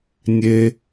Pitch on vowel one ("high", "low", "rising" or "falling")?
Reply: low